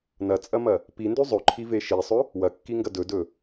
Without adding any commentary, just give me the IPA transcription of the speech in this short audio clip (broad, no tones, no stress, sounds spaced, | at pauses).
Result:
n ɐ t͡sʼ ɐ m ɐ | p i n d ʉ zˤ ɵ ǃʰ i v e ʃ i sˤ ɵ | w ɐ kː i ŋ ɡ ɐ d ɵ d ɵ